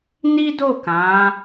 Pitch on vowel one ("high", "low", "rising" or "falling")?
high